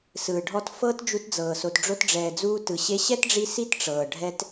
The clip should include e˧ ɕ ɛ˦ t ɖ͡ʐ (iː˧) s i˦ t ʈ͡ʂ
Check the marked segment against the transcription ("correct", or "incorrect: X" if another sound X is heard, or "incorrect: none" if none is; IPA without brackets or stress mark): incorrect: i˧